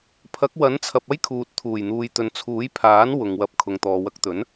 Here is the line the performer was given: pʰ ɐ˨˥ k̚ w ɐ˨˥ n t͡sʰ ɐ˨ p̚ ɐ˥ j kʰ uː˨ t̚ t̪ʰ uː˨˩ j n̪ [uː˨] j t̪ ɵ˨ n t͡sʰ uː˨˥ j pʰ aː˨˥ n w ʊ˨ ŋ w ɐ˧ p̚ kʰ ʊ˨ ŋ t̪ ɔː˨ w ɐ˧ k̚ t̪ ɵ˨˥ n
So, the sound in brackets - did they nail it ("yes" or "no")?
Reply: yes